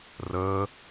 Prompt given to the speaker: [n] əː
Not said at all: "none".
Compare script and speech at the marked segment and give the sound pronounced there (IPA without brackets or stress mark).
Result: r